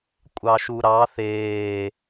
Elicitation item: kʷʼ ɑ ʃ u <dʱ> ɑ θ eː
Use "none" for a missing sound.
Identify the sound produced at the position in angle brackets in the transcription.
ɾ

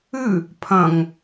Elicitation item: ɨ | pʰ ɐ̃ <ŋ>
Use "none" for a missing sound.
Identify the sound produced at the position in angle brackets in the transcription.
ŋ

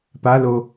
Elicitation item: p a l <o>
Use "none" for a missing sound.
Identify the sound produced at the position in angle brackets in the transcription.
o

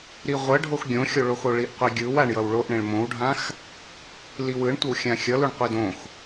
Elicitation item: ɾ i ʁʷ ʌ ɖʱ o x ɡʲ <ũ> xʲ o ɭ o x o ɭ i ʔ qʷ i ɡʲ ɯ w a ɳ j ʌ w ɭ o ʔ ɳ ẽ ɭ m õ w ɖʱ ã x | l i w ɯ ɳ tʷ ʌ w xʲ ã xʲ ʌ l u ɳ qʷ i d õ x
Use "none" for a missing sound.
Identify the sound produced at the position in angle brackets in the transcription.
õ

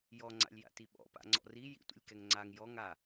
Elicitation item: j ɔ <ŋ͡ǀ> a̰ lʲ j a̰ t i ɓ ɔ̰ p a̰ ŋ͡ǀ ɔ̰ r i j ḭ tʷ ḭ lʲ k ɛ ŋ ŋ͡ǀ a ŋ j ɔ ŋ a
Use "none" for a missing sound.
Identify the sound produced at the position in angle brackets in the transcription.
ŋ͡ǀ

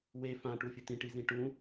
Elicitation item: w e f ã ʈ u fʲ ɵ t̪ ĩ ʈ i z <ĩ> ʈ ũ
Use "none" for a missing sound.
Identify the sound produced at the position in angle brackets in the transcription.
ĩ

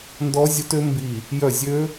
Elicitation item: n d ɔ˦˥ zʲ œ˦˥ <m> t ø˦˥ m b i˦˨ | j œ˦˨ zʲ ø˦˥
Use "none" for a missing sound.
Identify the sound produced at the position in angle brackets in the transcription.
none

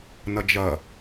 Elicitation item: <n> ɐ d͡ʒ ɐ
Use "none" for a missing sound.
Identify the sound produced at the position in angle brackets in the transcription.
n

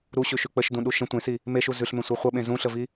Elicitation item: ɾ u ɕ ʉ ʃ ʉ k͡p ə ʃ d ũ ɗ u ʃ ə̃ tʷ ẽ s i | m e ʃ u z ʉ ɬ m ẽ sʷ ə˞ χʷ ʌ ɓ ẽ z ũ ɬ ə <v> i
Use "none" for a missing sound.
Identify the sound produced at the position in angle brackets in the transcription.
v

